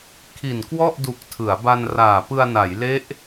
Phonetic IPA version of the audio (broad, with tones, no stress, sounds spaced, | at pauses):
kʰ i˨˩ n k w ɔ˥˩ ʔ d u˨˩ k̚ tʰ ɯ˩˦ a̯ b a˧ n r aː˨˩ p ɯ˧ a̯ n a˩˦ j l e˦˥ ʔ